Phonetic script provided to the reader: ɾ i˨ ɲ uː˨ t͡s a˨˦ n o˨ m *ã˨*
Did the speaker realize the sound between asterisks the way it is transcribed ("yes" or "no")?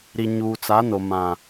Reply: yes